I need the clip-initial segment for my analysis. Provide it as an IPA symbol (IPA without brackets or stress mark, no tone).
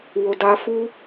w